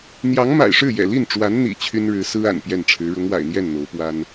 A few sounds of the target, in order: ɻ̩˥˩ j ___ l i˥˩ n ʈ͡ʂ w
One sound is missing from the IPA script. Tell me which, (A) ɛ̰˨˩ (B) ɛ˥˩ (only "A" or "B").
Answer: A